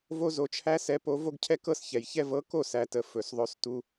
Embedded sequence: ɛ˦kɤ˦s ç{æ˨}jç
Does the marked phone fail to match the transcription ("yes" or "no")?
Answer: yes